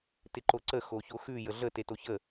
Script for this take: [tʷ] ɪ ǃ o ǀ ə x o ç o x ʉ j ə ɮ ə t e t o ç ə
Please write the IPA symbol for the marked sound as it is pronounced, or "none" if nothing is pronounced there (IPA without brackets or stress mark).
t